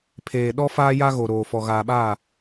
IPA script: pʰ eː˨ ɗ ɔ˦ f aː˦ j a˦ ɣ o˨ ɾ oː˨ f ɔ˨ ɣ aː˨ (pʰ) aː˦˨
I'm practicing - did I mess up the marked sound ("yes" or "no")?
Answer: yes